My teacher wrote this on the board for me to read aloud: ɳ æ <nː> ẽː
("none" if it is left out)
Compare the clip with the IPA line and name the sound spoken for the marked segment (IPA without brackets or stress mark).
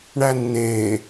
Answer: nː